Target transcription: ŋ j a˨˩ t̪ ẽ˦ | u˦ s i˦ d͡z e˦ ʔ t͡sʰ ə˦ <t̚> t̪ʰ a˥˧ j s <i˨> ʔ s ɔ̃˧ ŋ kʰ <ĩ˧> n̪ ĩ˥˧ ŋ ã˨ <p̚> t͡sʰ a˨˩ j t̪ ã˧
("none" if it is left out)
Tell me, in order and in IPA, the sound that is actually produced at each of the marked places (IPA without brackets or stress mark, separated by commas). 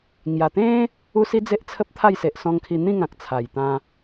p̚, e˨, i˧, k̚